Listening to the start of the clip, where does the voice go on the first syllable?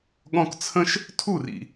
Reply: high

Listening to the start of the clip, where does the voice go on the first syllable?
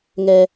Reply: high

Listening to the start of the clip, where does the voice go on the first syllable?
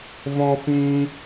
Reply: high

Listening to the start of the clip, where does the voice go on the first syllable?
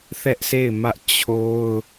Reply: high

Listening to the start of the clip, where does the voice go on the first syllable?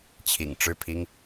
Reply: low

